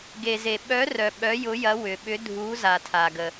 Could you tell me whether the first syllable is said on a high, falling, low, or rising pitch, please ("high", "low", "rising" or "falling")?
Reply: low